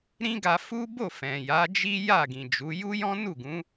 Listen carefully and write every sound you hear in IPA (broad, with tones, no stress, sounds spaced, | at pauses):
ɾ ĩ˦ ɡ a˧ f u˦ b o˦˨ f ɛ̃˨ j a˨˦ d͡ʒ i˦ j a˦˨ ɡ ĩ˨ d͡ʒ u˨˦ j u˦ j ɔ̃˦ n u˦˨ ɡ ũ˨˦